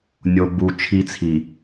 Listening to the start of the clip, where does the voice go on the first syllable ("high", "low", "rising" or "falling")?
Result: low